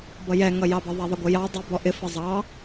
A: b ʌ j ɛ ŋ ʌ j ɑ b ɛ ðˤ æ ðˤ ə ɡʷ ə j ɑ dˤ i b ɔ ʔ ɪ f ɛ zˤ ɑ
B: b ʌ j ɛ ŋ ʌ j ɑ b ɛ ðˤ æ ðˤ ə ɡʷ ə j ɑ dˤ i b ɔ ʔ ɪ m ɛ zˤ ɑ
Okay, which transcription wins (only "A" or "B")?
A